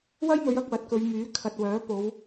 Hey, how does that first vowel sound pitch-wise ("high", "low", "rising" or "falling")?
high